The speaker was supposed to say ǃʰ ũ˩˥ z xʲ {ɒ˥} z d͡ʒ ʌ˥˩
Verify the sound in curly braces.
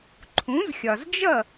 incorrect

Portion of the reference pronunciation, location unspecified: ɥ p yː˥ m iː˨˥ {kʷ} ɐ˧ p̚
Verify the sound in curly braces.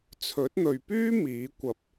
correct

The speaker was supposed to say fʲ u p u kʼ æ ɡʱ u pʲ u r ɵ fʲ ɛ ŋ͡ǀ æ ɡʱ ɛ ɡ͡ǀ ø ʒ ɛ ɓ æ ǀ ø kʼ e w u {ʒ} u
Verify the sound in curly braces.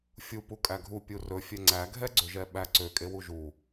correct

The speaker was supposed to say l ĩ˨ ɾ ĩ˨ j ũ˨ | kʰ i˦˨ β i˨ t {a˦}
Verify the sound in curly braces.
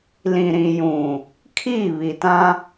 incorrect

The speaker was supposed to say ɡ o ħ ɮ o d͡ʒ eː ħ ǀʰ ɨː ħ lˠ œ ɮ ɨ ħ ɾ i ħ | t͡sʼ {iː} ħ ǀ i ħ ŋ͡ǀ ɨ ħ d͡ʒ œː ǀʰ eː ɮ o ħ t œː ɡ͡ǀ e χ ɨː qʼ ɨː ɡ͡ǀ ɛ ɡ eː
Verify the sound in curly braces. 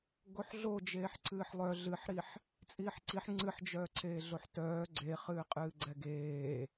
correct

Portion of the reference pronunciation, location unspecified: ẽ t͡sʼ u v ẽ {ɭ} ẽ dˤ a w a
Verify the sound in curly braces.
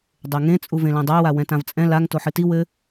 incorrect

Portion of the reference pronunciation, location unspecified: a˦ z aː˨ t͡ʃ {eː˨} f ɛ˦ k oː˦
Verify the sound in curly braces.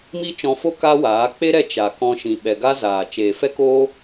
correct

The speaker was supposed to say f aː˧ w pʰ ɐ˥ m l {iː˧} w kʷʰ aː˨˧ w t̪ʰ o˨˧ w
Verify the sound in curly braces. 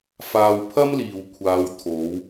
incorrect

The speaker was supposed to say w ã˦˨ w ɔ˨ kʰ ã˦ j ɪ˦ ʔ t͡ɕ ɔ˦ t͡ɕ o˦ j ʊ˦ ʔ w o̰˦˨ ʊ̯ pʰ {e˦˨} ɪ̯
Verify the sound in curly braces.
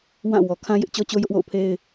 incorrect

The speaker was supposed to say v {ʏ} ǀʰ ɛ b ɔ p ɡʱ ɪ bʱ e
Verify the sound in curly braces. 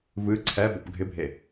incorrect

